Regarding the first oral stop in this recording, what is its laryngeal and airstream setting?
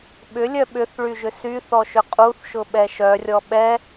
implosive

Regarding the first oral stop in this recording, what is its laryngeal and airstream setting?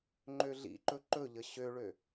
click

